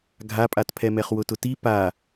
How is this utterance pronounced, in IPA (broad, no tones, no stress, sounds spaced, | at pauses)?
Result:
ɡʱ a pʼ a t pʰ ɛ m ɛ χ w ʊ t ʊ t i p a